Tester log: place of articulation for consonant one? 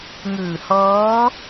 velar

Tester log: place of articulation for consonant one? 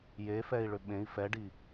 palatal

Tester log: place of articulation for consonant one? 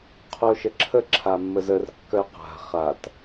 uvular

